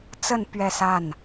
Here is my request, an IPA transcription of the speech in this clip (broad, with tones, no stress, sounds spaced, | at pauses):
t͡s ə˥˧ n p ɥ ɛ˥˧ s a˥˩ n